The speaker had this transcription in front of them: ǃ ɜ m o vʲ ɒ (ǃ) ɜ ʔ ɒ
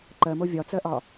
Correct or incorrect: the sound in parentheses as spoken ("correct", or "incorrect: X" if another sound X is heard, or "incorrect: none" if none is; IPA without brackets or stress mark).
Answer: incorrect: t͡s